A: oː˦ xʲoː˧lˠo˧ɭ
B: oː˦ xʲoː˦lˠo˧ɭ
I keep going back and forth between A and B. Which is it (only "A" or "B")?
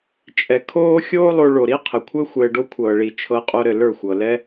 B